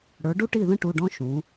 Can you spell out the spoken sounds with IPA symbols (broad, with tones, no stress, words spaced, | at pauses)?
ɽə˞˩˥ɖu˥ʈi˥˩ðə̃˥ ʈu˩˧˩ɖɔ̃˧˥ ʃũ˩˥